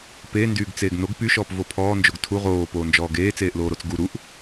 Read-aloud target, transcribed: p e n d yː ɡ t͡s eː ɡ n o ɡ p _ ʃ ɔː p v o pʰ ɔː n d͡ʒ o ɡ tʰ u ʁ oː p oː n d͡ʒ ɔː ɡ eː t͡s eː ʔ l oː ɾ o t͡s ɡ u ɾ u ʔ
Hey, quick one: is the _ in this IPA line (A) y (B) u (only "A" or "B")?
A